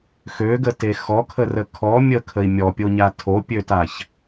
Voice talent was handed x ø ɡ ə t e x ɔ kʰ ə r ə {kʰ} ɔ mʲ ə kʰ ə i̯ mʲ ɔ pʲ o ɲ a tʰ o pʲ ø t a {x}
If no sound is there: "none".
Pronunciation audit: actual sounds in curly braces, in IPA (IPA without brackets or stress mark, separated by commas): kʰ, ç